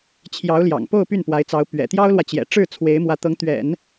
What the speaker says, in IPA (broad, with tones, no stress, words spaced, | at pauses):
t͡ɕʰjɑ˧˥ʊ̯ljɑ̰˨˩ŋpo˥˧ʊ̯ py˥˩npwa˧˥ɪ̯t͡sɑ˧˥ʊ̯ pɥɛ̰˨˩ t̪jɑ˥ʊ̯lwä˨t͡ɕjɛ̰˨˩ʈ͡ʂɻ̩˥˩ t͡sʰwe˧˥ɪ̯mwä˧˥t̪ɤ˧˥ŋ t̪ɥɛ̰˨˩˦n